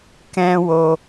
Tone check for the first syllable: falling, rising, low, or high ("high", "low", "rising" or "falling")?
high